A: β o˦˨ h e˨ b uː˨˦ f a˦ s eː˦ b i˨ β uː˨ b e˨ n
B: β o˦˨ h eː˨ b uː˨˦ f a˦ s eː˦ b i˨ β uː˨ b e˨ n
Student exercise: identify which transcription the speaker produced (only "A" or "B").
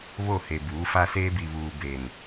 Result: A